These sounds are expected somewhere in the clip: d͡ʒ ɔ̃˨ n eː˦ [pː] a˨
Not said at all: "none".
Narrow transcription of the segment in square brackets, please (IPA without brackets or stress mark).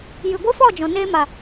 m